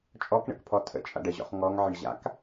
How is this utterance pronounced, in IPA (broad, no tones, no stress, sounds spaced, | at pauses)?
t͡ʃʼ ɔ k ɳ ə̰ k pʰ ɔ tʰ ə̰ t͡ʃʼ a̰ ɖ ə ʑ ɔ̰ χ ŋ ɔ ŋ ʕ ə ɳ ʑ a̰ k